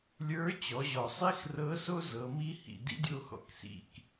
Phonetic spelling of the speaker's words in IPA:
lʲ ə˞˧˥ t͡ɕ ɔ˩˧ ʑ ɔ˩ sˤ i˥ x r ɤ˧˥ s o˥ z ɤ˩˧ m i˥ h ḭ˩ d ḭ˧˥ dʲ o˧ x ɔ̰˩ k s ḭ˩ k

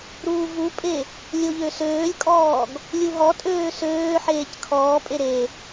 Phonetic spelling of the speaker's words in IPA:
ɾ uː v u pʼ e | lʲ o ʎ ø s øː lʲ kʼ ɔː ɡ | lʲ u ɦ ɔ tʼ øː s øː ħ eː c kʰ ɔː pʼ e ɾ e

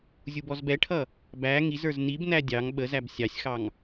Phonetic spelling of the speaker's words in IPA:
zʲ u b ɔ z b ɛ ʈʰ ʌ | b æ ŋ i z ə˞ z n i b n æ dʲ ɑ ŋ ɓ ə z æ b sʲ ɑ sʲ x ɑ ŋ

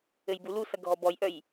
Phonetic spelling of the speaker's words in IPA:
ɘ j b u l u s ɐ ɡʱ ɔ b ɔ j ʔ œ j

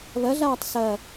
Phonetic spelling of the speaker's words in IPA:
β ɐ ɮ aː tˤ s ɐ

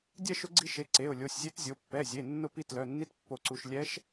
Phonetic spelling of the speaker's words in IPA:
dʲ ɛ˥˧ ʃ ʊ˧˥ ɡ͡ǀ i˧˥ ʃ e˩˧˩ ǀ e˩˧˩ ʊ̯ lʲ o˩˧˩ sʲ zʲ e˧˥ t zʲ o˩˧˩ pː ɛ˩˧˩ zʲ e˩˧˩ nː ʊ˥˧ p i˥˧ t l œ˩˧˩ nː i˧˥ t pː o˧˩ ǀ u˧˩ ʃ lʲ ɛ˧˥ ʃ

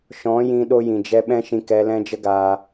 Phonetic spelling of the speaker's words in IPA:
ʃ ɔ̃˨˦ j ĩ˧ ɗ o˧ j ĩ˨ d͡ʒ ɛ˧ ɓ ɛ̃˦ ʃ ĩ˧ k ɛ˧ l ɛ̃˦ d͡ʒ ə˦ ɡ aː˧

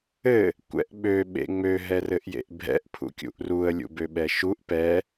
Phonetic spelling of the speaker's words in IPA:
ɘ | kʷ ɛ̰ ʔ ɓ ø ɓ ḛ ŋ͡m ø ɦ ɛ r ɘ ʔ j ḛ ʔ bʱ ɛ̰ ʔ pʰ ṵ kʲ ṵ ʔ r u ə̯ lʲ ṵ b ø ɓ ɛ ʃ u ʔ p ɛ

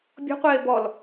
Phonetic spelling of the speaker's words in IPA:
bʲ ɔ̤ qʷ eː b ɔ l

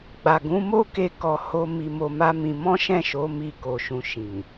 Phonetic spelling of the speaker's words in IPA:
ɡ͡b a˨ ɡ ũ˨˦ m o˦ k e˧ k ɔ˧ h o˧ m i˧ m o˧ m a˦ m ĩ˧ m ɔ̃˦ ʃ ɛ̃˦˨ ʃ o˨˦ m i˦˨ k o˧ ʃ ũ˧ ʃ ĩ˨

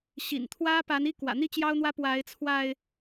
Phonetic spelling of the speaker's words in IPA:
ɕ ḭ˨˩ n t̪ʰ w ä˦ p a˨˦ n i˦ k w ä̰˨˩ n̪ i˥˨ t͡ɕ j ɑ˦ ʊ̯ n̪ w ä˦ p w a˨˦ ɪ̯ t͡sʰ w a˧ ɪ̯

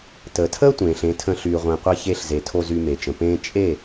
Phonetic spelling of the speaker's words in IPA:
t əː˨ tʰ əː˦ tʷ ẽː˨ ɬ ẽ˨˦ tʰ ə̃˧ ɬ yː˧ ʁʷ ẽ˧ qʷ ɛ˦ ç e˧ ɬ z e˨ tʰ o˧ z y˧ m e˨ t͡ʃ ə̃˨ p ẽː˦ t͡ʃʼ e˦˨

